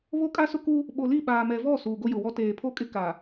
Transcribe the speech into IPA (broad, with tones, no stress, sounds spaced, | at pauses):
β o˦ kʼ a˦ s ʊ˦ k u˦ | ɓ o˨ l i˦˨ ɓ aː˨ m ɛ˨ v ɔ˦˨ s uː˨ ɡ o˦ j ʊ˨ w ɔ˦ t eː˨ pʰ o˦ kʼ ɪ˦ k a˨